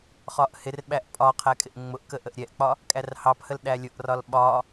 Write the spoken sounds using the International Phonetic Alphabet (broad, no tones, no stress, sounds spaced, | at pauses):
χ ɒ ʔ h ɪ r ɓ æ ʔ pʼ ɒ qʰ æ kʼ ɪ ʔ ŋ͡m ʊ ʔ k ə ʔ ə ʔ ɾʲ ɛ ʔ k͡p ɒ | kʼ æ r h ɑ p h ə l ɗ æ lʲ ʊ ʔ r ɒ l ɓ ɒ